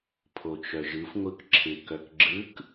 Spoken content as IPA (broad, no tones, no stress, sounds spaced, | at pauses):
pʰ o t͡ʃ œ ʒ ɯ f ŋʷ ɯ k ǁʰ ɪ k œ k ɡ͡ǁ ɯ k